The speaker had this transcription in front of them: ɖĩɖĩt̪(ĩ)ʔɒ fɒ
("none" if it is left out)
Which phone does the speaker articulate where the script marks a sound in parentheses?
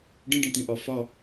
ĩ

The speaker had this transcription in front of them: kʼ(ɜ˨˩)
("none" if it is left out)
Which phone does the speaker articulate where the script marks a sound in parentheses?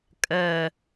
ɜ˨˩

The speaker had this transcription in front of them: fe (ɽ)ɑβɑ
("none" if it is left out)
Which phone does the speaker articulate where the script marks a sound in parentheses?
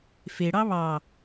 ɽ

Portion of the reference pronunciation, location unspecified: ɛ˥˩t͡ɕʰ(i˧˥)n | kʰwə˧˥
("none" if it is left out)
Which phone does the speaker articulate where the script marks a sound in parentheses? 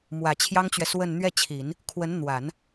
i˨˩˦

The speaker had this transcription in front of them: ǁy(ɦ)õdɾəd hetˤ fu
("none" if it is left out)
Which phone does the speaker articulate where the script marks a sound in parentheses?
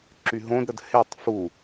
ɦ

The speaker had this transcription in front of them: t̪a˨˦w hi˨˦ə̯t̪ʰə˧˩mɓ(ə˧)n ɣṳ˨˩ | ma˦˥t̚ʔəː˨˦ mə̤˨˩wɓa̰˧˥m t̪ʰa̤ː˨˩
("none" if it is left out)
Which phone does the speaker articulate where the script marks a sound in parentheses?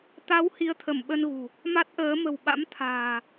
ə˧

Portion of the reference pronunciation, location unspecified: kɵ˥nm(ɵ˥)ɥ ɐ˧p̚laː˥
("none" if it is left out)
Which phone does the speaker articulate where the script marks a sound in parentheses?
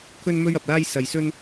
ɵ˥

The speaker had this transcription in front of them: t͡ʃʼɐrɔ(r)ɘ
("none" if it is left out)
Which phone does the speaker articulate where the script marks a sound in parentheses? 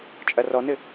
n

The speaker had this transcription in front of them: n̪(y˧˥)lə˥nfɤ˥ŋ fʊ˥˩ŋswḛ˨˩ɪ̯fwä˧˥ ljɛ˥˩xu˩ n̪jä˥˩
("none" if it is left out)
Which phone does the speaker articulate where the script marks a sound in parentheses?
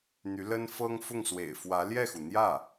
y˧˥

